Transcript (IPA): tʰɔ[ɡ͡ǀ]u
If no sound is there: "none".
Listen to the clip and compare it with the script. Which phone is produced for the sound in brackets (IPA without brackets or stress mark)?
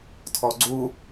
ɡ͡ǀ